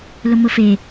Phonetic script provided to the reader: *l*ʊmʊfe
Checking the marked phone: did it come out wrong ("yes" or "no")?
no